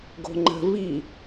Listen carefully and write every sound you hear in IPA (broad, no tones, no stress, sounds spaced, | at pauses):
ɡ o̤ ŋ͡ǃ ə̤ v i